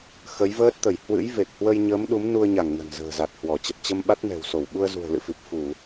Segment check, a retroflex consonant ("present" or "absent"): absent